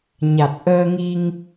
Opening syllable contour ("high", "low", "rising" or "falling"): low